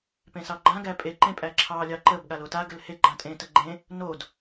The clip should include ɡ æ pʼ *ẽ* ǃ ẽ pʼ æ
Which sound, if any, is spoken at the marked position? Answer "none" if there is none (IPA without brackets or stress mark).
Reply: e